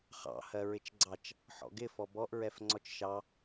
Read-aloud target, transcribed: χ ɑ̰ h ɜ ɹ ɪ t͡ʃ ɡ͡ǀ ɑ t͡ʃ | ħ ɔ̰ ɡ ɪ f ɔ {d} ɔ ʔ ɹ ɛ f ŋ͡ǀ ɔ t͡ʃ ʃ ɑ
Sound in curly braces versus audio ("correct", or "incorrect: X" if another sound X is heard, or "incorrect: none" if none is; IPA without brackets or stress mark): incorrect: b